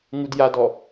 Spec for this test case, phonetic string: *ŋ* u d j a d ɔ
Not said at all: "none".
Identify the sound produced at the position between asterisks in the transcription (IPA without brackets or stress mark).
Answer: ŋ